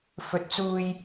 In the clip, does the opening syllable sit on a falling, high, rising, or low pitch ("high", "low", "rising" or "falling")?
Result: rising